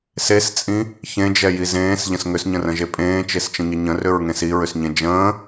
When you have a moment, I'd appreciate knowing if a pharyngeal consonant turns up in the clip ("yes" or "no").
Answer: no